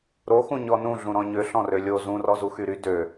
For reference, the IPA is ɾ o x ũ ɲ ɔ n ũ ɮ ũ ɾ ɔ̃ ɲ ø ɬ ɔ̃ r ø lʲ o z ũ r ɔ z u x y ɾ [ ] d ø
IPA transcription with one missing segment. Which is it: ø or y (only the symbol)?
y